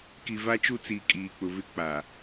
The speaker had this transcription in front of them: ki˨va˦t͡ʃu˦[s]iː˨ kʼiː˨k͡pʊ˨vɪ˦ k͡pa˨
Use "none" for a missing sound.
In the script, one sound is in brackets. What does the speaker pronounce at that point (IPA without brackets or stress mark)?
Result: t͡s